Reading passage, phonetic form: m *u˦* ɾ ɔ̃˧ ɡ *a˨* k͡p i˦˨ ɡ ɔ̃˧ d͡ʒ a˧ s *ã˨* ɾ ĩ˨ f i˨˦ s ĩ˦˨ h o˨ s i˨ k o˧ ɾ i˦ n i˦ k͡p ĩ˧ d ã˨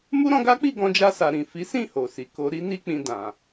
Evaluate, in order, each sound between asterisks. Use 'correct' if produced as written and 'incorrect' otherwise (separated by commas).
correct, incorrect, incorrect